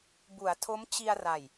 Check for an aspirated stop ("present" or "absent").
present